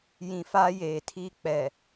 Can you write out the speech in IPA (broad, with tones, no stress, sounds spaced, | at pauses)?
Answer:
j ĩ˨ f aː˦ j eː˨ tʰ iː˦ k͡p ɛ˨